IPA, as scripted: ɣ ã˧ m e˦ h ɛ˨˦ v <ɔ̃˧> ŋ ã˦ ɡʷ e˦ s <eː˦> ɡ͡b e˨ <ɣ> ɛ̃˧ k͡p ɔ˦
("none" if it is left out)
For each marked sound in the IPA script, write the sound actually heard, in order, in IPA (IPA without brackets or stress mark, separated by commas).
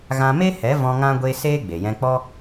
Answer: ɔ̃˧, eː˦, j